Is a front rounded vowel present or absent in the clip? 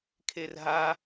absent